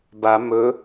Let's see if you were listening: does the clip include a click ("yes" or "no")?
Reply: no